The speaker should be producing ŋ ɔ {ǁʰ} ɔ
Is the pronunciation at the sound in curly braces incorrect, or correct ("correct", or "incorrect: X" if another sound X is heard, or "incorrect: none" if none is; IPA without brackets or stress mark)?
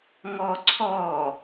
incorrect: ǀʰ